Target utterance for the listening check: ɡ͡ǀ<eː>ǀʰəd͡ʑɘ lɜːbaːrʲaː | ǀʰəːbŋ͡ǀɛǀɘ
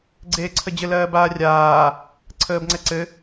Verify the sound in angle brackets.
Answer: correct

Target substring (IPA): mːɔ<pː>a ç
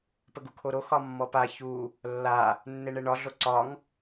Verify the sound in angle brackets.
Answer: incorrect: p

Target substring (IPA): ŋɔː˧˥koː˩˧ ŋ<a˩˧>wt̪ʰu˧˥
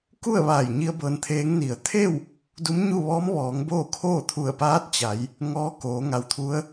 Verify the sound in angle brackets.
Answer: correct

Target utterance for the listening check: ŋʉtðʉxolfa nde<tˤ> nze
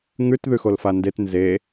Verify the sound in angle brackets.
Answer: incorrect: t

